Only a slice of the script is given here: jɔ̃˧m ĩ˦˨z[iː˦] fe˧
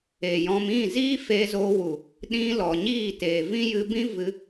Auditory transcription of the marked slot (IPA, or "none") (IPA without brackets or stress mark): iː˦